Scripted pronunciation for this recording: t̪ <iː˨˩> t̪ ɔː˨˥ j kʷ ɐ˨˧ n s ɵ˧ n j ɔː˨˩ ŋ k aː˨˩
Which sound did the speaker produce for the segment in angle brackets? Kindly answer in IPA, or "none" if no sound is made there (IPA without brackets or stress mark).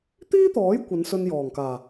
iː˥